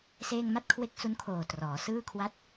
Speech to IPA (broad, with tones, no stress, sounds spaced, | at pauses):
s eː˥˩ ŋ m a˥˩ t̚ kʰ w e˦˥ k̚ s u˦˥ n kʰ oː˨˩ t r ɔː˩˦ s ɯː˥˩ kʰ w a˥˩ t̚